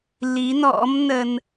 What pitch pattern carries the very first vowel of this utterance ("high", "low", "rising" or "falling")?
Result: rising